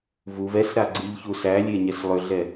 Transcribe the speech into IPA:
vuv ɛsɾa ɡ͡ǀiʎçusælʲe ɲɛslˠʏɮɛ

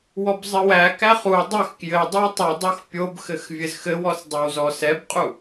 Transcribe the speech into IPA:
wɔbzˤɘwækæ χu dˤɘx kjɘ dˤɘwtˤudˤox pʲobxɘx vʲɘzxɘwɔs dˤɛwzɔsɛbqʼu

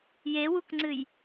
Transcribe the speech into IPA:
jewukŋ͡ǀɨj

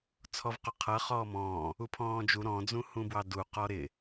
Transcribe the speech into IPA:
t͡sʰɔvqɔqʰʌ χɔːmɔ̃ː | upʰɔ̃ːd͡ʒu ɾɔ̃ d͡zũhũbwɑdu qɔɾɪ

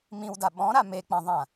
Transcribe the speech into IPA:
mĩwda ɓɔ̃ɾa mek͡pãðˤã

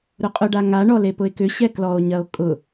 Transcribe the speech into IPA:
ɾʊqʼʊɖa ŋaɳɔ lepʊe̯kʏɕɛ klɔo̯ɲɐo̯ kʼʊ

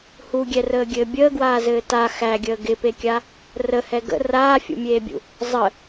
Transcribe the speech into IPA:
huɡʲɛrəːɡʲɘː bʲəːɡwaːzɘː ta xæɡʲəː ɡɪpekʲa | rəhɛ ɡə̰ raːfʲṵmʲeːbʲṵ | zˤə

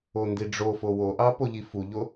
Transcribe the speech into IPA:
ondiɖ͡ʐofo woʔɑ poʎifuʎo

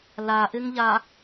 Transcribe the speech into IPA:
laʔɪŋʎa

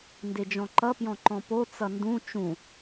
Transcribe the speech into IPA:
nded͡ʒɔ̃ǃʌpjɔ̃ ǃɔ̃po t͡sʌndũ t͡ʃũ

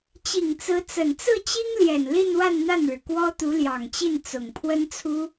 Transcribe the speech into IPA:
t͡ɕi˨˩ŋt͡sɹ̩˧˥t͡sə˨˩n t͡sɹ̩˥˩t͡ɕi˥ŋljɛ˨˩n li˥˧nwa˥˧nn̪a˥˩nɻɻ̩˩ kwɔ˥t̪u˧˥ljɑ˨˩ŋt͡ɕi˥˩n t͡sʊ˨˩ŋpʰwə˥nt͡sʰu˥

